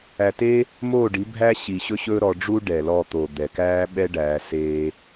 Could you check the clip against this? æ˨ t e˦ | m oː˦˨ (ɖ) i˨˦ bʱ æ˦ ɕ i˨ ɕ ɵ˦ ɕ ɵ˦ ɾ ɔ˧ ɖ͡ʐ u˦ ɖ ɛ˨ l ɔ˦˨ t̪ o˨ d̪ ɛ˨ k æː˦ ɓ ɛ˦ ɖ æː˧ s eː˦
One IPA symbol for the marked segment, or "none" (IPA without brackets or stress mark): ɖ